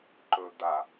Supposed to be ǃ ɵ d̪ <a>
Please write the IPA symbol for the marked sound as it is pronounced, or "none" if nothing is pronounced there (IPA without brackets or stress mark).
a